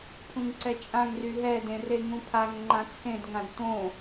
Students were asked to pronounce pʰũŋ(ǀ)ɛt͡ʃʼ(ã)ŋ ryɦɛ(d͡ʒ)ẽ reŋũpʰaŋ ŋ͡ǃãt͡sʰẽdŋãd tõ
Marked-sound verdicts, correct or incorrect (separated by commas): correct, correct, incorrect